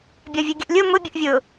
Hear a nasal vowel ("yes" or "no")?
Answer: no